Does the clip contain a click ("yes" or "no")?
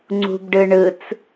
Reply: yes